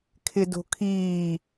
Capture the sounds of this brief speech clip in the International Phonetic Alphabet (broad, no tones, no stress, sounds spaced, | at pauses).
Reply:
kʰ ɪ d o̤ kʰ iː